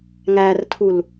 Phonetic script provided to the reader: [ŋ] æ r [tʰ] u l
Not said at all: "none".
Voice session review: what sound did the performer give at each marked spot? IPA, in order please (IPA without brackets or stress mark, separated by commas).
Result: ŋ, tʰ